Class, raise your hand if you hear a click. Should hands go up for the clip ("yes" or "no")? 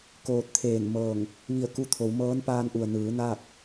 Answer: no